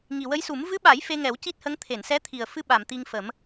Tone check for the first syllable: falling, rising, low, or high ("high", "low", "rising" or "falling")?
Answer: low